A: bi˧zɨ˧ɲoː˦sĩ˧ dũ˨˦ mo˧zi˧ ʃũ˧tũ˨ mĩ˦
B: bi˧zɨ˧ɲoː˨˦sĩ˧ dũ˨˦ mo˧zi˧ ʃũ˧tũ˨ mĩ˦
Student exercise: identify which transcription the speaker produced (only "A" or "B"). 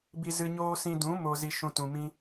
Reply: A